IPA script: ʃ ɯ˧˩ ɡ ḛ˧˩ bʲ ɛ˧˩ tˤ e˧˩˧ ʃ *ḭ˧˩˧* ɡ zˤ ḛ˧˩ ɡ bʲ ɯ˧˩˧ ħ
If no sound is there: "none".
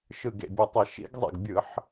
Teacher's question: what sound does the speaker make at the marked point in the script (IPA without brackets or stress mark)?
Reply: ḭ˧˩˧